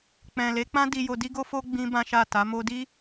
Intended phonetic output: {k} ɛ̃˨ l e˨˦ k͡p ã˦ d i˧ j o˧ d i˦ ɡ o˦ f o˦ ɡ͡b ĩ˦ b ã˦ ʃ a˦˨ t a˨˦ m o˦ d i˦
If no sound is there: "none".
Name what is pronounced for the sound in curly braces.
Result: k͡p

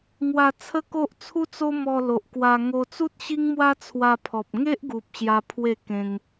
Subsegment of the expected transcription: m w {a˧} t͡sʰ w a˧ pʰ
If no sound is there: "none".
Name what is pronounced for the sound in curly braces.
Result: a˦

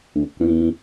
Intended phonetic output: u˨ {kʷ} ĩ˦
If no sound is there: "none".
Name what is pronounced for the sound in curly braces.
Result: kʷ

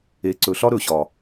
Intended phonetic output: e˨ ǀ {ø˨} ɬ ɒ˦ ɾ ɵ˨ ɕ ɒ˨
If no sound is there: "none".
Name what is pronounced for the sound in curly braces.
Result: ɵ˨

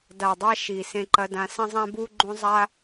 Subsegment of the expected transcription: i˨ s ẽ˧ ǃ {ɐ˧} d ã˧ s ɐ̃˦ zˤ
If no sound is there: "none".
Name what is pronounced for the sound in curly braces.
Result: ɐ˧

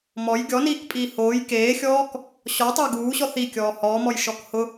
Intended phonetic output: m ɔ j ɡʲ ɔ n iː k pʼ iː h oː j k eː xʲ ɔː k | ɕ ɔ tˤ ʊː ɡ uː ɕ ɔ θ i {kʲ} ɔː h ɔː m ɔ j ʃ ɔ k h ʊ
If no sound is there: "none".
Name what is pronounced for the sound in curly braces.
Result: kʲ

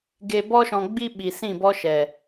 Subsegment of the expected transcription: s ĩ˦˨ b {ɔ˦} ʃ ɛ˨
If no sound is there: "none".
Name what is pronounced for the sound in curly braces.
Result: ɔ˦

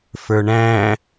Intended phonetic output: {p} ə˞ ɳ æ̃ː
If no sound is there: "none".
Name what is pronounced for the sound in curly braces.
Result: f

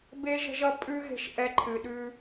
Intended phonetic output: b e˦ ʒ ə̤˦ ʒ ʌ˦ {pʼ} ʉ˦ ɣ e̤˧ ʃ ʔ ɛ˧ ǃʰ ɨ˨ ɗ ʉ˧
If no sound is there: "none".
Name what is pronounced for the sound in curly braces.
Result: pʼ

